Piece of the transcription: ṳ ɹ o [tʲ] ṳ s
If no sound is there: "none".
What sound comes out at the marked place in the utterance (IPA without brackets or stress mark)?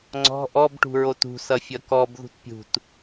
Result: t